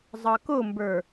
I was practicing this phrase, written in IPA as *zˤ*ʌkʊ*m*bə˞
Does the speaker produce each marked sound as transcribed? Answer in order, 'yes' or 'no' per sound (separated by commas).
yes, yes